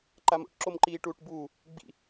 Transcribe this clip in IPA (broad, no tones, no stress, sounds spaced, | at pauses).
ǃ a m o̰ ʈ ǁ o m ǃ iː ʈ uː ʈ b uː | ɡ͡b ḭ